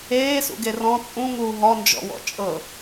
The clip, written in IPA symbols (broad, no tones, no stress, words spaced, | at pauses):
eːsṵɡe rɔ̃ t͡sʼũŋuː ɦɔnd͡ʒɔ̰wɔ̰ t͡ʃʼɤ